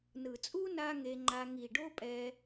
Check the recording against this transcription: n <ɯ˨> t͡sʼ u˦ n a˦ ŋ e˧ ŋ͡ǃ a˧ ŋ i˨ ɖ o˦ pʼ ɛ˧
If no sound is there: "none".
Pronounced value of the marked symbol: ɯ˨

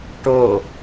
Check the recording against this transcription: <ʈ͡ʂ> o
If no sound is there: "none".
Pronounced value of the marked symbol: ʈ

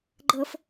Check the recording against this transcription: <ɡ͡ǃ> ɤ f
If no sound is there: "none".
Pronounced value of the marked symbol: ɡ͡ǃ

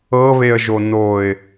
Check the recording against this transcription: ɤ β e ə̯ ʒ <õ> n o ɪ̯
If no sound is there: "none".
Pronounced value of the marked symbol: o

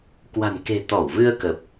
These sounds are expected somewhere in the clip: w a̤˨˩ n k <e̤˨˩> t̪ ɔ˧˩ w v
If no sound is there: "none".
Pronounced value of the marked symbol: e̤˨˩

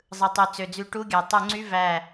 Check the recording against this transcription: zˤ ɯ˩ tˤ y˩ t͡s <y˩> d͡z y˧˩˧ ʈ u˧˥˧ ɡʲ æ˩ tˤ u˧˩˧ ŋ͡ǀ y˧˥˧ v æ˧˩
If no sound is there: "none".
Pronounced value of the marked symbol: ø˩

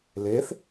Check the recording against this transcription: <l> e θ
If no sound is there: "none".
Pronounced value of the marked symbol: l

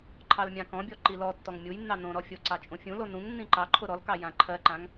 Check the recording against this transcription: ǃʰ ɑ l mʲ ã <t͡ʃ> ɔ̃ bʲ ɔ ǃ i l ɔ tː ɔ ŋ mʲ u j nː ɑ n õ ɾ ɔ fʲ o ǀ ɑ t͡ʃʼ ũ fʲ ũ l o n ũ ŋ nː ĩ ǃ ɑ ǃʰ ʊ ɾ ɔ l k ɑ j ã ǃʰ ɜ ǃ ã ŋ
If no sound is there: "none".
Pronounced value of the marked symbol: k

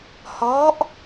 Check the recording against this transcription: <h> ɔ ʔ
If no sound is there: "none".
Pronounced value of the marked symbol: h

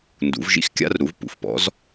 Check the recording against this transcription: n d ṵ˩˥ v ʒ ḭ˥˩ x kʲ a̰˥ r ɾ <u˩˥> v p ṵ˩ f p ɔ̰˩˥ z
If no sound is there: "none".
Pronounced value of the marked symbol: u˩˥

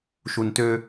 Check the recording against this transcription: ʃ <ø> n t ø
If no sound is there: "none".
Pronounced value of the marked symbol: u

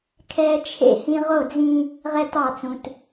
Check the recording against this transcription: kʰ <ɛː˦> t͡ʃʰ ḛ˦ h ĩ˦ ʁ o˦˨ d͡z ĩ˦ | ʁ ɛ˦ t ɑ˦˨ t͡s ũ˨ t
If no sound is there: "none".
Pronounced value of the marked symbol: ɛː˦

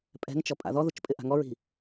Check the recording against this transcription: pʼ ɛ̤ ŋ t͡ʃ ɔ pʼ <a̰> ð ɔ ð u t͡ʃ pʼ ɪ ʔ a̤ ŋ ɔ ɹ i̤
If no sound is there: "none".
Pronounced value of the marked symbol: a̰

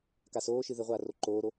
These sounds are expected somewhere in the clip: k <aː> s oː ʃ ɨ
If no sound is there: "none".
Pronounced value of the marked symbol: a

